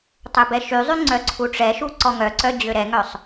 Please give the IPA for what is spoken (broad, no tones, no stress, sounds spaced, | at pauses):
tˤ ø b ɛ ʃ y zˤ y ŋ͡ǀ œ ǀʰ u ʈ͡ʂ ɛ ʃ u ǀ ɔ ŋ œ ǀ œ d͡ʑ ø ɾ ɛ ŋ œ sˤ